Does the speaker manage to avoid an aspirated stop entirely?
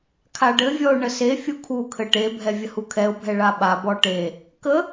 no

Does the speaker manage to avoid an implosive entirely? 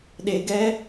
no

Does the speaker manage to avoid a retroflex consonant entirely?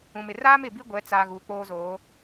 yes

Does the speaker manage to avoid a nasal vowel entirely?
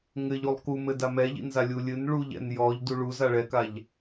yes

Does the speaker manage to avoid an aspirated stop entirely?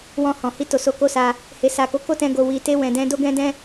yes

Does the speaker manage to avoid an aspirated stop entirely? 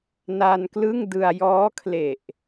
no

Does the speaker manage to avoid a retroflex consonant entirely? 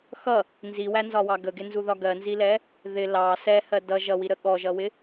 yes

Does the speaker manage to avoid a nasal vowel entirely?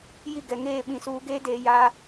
no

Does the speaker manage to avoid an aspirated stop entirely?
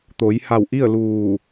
yes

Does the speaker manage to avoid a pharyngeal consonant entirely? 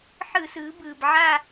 no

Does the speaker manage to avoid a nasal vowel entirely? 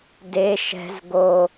yes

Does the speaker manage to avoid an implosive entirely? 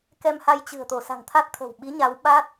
no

